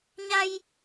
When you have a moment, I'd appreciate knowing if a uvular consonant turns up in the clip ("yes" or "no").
no